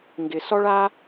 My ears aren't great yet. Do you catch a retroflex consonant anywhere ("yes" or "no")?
yes